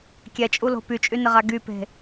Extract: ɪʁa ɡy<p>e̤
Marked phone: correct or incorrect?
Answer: correct